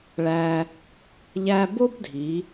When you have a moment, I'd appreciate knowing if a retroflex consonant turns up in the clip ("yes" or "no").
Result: yes